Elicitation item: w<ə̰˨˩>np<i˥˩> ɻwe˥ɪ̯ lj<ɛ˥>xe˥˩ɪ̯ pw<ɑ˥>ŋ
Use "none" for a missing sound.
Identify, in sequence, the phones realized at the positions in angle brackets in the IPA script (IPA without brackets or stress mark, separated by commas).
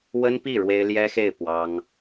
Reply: ə˥, i˥˩, ɛ˥, ɑ˥